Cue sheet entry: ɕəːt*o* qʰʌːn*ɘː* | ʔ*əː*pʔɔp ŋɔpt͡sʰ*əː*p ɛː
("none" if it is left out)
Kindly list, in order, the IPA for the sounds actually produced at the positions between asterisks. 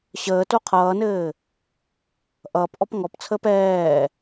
o, ɘː, ʌː, əː

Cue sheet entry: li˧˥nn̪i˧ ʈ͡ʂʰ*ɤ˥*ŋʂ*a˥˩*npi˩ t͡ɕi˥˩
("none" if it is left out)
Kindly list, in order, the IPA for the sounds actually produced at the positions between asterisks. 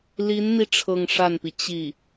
ɤ˥˧, a˥˩

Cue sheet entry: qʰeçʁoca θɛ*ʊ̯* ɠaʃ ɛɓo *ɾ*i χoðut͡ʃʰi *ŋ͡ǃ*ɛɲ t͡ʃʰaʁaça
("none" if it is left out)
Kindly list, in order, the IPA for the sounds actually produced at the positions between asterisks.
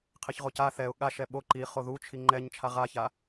ʊ̯, ǃ, ŋ͡ǃ

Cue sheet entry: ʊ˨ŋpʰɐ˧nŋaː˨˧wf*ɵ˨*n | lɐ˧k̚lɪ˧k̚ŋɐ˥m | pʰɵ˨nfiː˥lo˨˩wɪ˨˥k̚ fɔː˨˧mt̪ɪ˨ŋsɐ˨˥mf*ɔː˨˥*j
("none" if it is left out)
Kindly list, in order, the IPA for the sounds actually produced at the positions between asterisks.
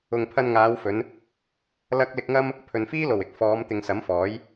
ɵ˨˧, ɔː˨˥

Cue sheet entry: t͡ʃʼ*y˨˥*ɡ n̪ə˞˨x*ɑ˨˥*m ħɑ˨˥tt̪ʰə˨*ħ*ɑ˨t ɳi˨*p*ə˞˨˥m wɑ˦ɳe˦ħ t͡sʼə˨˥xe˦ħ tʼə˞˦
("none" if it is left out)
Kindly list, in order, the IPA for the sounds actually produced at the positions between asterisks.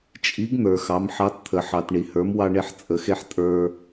i˨˥, ɑ˨˥, ħ, h

